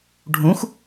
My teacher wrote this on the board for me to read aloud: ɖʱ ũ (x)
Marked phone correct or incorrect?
correct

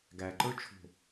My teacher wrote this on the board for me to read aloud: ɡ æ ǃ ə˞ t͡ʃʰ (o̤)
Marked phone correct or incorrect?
correct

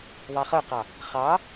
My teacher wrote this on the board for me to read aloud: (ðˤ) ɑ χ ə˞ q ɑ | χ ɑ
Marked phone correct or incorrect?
correct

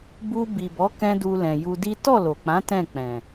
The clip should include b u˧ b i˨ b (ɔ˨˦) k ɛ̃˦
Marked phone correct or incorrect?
correct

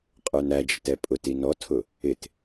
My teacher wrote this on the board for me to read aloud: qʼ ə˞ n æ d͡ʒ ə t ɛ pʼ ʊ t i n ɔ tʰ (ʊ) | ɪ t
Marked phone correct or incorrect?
correct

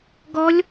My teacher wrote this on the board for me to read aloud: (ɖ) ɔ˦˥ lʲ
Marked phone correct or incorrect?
incorrect: ɡ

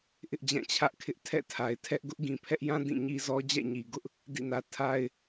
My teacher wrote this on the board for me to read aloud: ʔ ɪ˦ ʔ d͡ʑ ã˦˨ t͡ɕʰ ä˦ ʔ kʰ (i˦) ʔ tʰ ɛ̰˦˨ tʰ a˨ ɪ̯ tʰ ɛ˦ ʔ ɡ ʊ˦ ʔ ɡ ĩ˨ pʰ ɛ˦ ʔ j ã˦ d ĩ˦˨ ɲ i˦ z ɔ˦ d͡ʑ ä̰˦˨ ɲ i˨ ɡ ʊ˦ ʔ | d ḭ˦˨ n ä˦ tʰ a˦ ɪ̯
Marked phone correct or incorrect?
incorrect: ɪ˦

